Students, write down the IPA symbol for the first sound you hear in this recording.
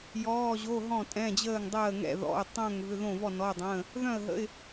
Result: j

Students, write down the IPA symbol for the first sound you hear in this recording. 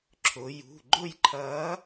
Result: ǁʰ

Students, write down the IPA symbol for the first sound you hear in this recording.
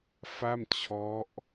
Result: f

